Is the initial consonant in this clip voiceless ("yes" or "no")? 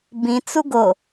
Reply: no